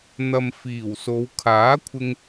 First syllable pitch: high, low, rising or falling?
low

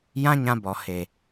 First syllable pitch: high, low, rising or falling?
high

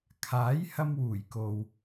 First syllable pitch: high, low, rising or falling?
rising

